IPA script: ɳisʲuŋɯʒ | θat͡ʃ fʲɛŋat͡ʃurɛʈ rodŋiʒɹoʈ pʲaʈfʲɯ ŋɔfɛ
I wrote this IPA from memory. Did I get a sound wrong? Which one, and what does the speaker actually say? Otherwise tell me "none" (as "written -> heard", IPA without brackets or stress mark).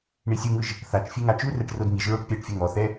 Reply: f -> θ